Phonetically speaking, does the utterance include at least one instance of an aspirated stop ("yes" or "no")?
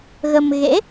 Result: no